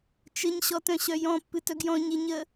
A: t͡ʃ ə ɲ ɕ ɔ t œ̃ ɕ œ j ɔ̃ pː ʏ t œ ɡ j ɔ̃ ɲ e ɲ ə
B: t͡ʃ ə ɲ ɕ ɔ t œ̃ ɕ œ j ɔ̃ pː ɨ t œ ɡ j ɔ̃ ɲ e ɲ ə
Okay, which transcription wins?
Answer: B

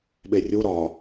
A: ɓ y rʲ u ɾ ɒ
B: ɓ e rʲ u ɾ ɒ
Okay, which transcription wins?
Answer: B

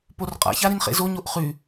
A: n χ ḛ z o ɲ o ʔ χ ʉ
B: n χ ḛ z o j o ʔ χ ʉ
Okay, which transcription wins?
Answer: A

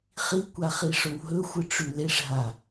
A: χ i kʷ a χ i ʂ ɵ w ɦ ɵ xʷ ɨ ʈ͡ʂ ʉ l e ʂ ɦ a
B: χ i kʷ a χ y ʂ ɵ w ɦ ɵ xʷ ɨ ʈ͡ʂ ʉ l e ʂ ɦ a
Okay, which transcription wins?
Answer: A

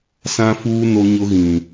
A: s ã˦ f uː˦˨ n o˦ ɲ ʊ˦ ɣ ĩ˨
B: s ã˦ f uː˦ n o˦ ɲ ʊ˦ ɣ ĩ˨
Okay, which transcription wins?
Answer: B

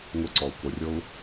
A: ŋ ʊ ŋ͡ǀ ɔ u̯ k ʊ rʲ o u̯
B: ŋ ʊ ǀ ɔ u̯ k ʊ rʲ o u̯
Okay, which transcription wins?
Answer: B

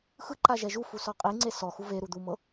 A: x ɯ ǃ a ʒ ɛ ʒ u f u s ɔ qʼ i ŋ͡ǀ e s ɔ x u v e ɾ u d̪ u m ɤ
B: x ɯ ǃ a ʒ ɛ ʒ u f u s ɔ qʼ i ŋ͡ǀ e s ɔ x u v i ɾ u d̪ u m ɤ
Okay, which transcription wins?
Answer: A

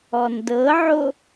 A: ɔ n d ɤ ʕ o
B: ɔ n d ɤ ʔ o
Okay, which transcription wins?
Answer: A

